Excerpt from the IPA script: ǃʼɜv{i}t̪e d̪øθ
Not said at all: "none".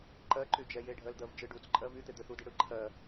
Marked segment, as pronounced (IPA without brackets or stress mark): y